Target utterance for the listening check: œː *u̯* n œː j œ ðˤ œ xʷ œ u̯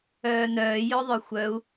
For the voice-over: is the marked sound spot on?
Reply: no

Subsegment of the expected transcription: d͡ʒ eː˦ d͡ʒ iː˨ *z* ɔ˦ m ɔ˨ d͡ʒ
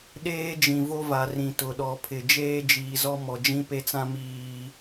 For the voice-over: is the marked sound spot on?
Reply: yes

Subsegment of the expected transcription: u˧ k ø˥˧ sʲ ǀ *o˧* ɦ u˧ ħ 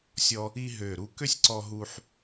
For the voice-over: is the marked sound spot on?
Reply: no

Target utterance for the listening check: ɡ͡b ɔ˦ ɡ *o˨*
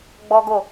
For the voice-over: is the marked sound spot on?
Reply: no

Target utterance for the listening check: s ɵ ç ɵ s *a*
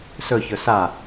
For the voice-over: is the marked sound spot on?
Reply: yes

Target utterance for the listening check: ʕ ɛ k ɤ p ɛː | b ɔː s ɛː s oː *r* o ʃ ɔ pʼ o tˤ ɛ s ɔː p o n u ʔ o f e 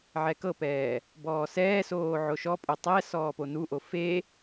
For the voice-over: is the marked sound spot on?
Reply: no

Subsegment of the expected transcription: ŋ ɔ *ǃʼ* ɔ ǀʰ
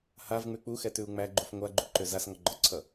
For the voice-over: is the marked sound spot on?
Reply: no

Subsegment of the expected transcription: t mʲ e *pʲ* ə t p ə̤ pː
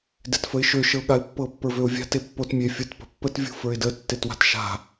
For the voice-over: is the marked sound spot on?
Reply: no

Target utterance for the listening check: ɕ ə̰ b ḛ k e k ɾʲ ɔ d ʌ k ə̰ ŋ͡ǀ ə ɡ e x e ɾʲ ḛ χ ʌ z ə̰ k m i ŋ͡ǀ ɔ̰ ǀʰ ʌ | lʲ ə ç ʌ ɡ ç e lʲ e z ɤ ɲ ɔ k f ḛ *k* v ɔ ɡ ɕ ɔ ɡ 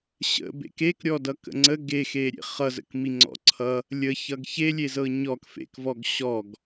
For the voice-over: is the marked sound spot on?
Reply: yes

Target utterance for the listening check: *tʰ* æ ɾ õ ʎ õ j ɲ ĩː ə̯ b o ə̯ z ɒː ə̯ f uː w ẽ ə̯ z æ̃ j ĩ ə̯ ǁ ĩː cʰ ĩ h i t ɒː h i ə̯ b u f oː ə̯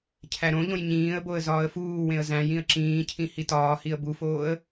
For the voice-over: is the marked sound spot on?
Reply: no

